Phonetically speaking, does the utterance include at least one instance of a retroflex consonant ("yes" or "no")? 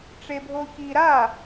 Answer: yes